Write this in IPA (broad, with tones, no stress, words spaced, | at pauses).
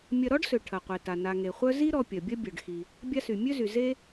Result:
mʲɐ˨ɾɔ˥ɖsø˩ ʈʰɐ˩qʷe˩ta˩ na˩ŋe˩χʷœ˦ zi˦ɾɔ˨ pʲɐ˩bʲɐ˦bʲœ˩ɖ xi˩ | bʲa˦sy˩mʲø˥zy˩ ze˥